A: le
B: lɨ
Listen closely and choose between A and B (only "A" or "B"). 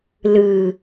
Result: B